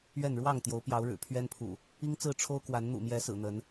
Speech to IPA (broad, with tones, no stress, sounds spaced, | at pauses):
ɥ ɛ˥˨ n ɻ w ɑ˥˨ ŋ t̪ j o˨˦ ʊ̯ p j ɑ˨˦ ʊ̯ ɻ ɻ̩˨˩ pʰ ɥ ɛ˦ n pʰ ṵ˨˩ | i˦ ŋ t͡s ɹ̩˥˨ ʈ͡ʂʰ o˦ ʊ̯ k w a˨˦ n n̪ ṵ˨˩ m j ɛ˨˦ s ɹ̩˨˩ n̪ ə˨˦ n